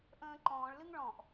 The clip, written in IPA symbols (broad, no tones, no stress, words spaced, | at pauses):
ʔə̃ːǃɔ̃ːɭlɨŋ ɭɔ̃ʔ